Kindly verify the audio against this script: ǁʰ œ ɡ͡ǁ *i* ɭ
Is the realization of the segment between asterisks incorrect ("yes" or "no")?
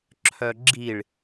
no